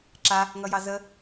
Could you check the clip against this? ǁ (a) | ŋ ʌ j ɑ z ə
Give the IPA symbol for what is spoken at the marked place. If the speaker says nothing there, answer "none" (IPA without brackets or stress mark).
a